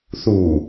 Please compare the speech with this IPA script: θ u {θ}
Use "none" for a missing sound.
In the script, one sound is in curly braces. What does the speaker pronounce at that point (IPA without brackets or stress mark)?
none